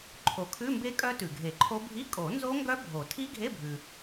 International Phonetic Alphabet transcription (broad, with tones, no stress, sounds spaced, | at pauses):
ǃʰ o˩ kʰ ʉ˧˥˧ m b e˦˥ kʼ œ˦˥ t ʉ˩ ɡʱ e˨˩˦ ǃʰ o˦˥ bʱ i˧˥˧ kʼ o˨˩˦ n z o˦˥ ŋ ɡ œ˦˥ bʱ o˨˩˦ tʰ i˦˥ ɡʱ e˧˥˧ bʱ ʉ˩